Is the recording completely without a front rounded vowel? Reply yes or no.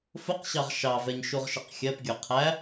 yes